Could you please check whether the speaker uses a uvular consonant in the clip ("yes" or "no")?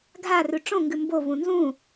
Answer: no